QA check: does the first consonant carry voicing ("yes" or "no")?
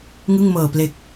yes